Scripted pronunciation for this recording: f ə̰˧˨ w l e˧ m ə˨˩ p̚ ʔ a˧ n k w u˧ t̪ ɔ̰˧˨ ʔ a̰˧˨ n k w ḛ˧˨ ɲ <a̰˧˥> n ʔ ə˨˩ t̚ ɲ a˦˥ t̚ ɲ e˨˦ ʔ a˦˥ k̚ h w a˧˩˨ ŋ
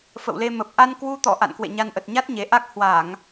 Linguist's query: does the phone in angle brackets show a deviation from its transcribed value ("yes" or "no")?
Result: yes